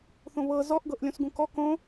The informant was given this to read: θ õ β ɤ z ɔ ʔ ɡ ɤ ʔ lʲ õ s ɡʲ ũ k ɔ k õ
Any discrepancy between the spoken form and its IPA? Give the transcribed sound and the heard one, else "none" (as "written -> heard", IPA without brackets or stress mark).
ɡʲ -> ɡ